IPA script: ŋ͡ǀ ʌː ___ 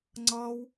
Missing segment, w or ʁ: w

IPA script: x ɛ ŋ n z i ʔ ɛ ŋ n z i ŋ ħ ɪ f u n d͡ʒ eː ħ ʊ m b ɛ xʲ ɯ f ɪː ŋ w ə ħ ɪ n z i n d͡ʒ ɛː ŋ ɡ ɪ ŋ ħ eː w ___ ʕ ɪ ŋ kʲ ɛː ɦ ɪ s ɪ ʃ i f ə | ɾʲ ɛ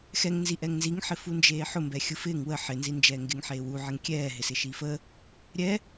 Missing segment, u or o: u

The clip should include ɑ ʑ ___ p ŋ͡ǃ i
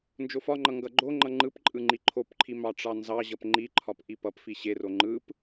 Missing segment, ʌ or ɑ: ʌ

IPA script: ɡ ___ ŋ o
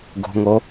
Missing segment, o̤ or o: o̤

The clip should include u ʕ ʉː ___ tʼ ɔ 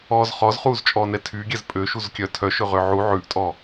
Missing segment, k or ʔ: ʔ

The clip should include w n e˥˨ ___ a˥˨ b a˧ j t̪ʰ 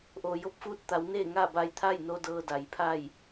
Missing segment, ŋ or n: ŋ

